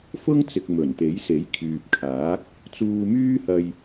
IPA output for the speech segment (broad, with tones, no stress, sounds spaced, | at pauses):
f ʊ˥ ŋ t͡s ɪ˨ k̚ m ɵ˨˩ n t̪ e˨˥ j s e˨˥ j kʰ yː˨ p̚ kʰ aː˨˥ k̚ | t͡s uː˧ m yː˥ h ɐ˧ j